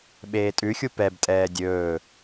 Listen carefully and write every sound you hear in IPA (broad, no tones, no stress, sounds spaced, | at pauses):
ɓ eː tʼ ʉ xʲ u p ɛ b tʼ ɛː dʲ ɵː